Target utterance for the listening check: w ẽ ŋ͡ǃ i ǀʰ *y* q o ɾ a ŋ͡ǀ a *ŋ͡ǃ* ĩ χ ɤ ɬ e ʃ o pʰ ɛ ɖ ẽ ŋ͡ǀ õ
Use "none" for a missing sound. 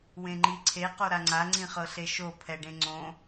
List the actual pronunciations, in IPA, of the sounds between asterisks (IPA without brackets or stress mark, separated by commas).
e, ŋ͡ǀ